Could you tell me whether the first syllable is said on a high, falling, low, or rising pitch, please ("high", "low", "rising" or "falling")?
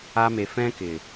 high